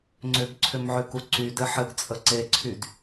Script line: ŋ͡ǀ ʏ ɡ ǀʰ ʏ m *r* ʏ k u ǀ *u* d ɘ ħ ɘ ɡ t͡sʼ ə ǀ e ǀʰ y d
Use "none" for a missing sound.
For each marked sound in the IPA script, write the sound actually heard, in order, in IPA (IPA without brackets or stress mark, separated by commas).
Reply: ʕ, y